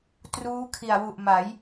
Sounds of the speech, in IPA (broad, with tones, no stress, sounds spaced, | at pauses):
t r uː˦˥ kʰ i˨˩ a̯ w u˨˩ ʔ m a˩˦ j